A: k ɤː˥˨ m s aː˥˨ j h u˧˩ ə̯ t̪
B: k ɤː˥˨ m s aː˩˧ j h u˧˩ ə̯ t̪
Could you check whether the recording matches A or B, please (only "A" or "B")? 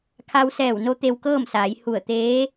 B